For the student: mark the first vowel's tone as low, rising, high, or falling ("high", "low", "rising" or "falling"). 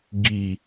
low